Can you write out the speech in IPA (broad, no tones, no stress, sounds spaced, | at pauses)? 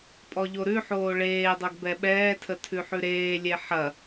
pʼ ɔ ʎ o ɾ ʉ ħ oː ɭ eː dˤ o ɡ b ɛ ɓ ɛː tʰ ə tʰ ʉ ħ ʉ ɾ eː lʲ e ħ ɐ